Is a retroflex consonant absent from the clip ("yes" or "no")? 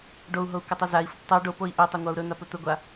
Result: no